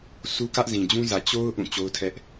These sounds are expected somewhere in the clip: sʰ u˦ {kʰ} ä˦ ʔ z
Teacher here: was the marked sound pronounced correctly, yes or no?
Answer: no